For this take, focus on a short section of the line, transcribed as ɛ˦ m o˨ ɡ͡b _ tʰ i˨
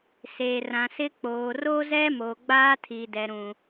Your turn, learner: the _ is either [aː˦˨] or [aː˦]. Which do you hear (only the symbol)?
aː˦